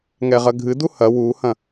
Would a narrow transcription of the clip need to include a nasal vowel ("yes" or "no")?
yes